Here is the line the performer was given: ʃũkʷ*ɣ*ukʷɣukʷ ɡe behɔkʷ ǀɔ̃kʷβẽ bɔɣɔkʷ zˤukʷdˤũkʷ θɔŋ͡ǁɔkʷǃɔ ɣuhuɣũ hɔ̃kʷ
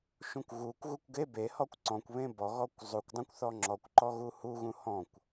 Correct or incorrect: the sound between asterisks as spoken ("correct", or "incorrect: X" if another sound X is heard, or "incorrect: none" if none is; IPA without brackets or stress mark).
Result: correct